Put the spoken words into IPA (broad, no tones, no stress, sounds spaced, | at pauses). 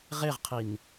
ʁ e ʁ qʰ i n